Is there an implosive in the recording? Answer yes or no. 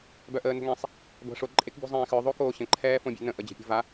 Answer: no